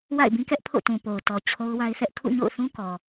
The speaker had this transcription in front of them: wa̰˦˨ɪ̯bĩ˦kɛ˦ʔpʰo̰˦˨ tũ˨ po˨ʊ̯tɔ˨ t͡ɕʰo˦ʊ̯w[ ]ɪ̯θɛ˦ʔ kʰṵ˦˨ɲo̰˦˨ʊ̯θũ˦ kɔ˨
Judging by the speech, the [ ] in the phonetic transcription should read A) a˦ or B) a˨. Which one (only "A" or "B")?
A